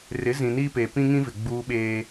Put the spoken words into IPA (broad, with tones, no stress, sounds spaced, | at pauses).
r ɪ˨˦ z ĩ˨ n iː˦ p eː˨ p ĩ˦ ŋ ĩ˦ v ɪ˨ ɡ͡b uː˦ ɓ eː˦